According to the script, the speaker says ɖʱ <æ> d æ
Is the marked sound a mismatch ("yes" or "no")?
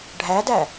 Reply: no